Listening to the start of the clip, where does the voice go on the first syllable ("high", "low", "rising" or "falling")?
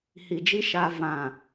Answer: low